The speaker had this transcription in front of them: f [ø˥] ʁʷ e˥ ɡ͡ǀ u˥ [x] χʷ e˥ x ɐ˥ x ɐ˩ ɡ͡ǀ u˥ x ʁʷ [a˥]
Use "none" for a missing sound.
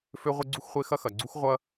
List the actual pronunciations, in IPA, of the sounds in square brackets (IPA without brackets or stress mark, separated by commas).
ø˥, x, ɐ˥